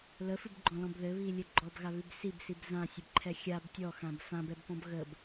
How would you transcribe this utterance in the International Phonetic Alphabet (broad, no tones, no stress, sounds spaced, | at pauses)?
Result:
l ə f ɨ b ɡ͡ǃ ɔ̃ l ɔ̃ b ð ɘ β i lʲ ɘ ɡ͡ǃ ɔ b ɣ a β ʉ b s i b s i b z ã sʲ ɘ b ǃʰ ɛ xʲ a b tʲ ɔ x ã b f ã b ɛ b p ɔ̃ b ɣ ə b